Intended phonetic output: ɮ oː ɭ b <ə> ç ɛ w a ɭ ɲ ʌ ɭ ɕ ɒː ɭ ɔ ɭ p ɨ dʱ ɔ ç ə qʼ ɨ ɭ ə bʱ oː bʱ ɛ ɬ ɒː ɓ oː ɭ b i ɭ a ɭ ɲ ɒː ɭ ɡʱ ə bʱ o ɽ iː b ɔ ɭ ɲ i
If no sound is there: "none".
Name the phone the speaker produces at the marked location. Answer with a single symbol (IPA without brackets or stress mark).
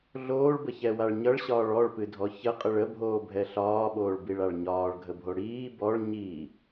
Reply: ə